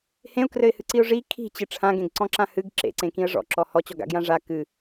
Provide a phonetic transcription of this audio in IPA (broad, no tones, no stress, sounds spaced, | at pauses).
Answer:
h ẽ ʊ̯ k r ɘ ɪ̯ h ɨ ǀ i ʊ̯ ʐ i kʰ i̤ t͡ɕ ɨ ʈ͡ʂʰ ã ɡ ẽ ɡ ǀ ɔ̃ ǁ ã h ɨ ɡ ǁ ḛ ǀ ẽ k ĩ ə̯ ʐ ɔ̰ ǁ ɔ h ɔ t͡ɕ ɔ ɡ a̰ ɡ j ã ʐ a k ɨ